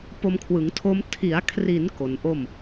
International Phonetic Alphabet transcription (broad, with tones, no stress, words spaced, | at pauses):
po˧mkʰwɯ˩˦ŋtʰo˦˥m tʰi˩˦a̯kʰri˩˦n ko˩˦nʔo˥˩m